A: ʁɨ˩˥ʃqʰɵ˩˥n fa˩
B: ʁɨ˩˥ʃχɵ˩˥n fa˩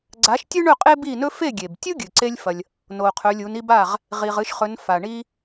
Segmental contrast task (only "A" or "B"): B